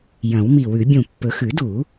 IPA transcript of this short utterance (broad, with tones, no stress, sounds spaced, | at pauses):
j ɐ̃˨˩˦ w m i˧˩ w ʉ˨˩˦ bʲ ũ˧˩ pː ɵ˨˩˦ x ʉ˨˩˦ d u˨˩˦